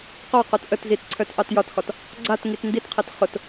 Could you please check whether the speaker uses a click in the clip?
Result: yes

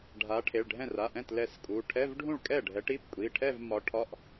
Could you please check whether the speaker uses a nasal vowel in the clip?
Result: yes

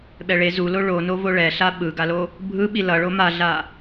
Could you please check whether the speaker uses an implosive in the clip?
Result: yes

